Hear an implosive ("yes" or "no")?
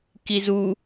no